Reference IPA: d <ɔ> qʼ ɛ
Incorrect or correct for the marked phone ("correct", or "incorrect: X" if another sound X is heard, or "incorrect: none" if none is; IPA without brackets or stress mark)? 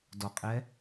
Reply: correct